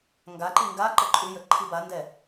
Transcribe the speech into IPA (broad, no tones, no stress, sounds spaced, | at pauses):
ŋ ɡ a ǃ i ŋ ɡ a ǃ ə ǃʼ ʉ j ə ǃʰ i b a n d ɛ